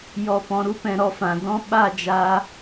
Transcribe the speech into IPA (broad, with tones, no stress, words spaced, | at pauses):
jɔ˨pɔ̃˨ɾu˦ pɛ̃˧ɾɔ˧fã˨ dɔ̃˦ ɓa˦˨d͡ʒaː˧